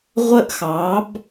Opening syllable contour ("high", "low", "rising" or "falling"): high